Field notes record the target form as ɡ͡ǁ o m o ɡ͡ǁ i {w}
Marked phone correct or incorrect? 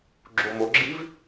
incorrect